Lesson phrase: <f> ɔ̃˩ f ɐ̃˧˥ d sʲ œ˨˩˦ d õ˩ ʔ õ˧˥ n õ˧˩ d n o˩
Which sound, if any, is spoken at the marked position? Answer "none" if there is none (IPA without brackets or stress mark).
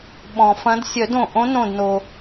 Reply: ɓ